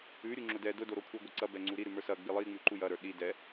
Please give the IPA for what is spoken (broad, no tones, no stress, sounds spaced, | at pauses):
ʉ ɾʲ u ŋ͡ǁ ʊ d ɛ d ʊ d o ɾ o kʷʰ ə˞ ɡʷ ɛ ǀ ɐ b ɛ ŋ͡ǀ u ɾ i ɾ ʉ m ə˞ s ɐ ɡ͡b i lˠ i ŋ͡m ʉ ǃ u j ɐ ɾ ə˞ ɗ i d ɛ